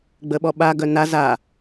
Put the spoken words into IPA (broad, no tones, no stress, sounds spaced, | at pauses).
ɡ͡b ə ɓ ɔ ɓ a ɡ œ n a z a